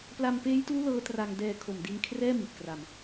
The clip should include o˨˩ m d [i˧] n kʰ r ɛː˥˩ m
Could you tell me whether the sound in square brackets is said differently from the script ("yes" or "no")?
no